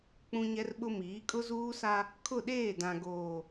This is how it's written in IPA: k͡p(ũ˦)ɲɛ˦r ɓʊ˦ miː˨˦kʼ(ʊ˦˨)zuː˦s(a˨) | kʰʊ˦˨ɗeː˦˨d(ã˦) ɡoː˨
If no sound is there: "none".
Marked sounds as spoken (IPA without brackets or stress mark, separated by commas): ũ˦, ʊ˦, a˦, ã˨